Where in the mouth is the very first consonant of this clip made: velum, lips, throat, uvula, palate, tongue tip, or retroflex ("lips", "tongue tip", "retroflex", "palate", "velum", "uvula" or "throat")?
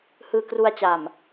throat